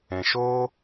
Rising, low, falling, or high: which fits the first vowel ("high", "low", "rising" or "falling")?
low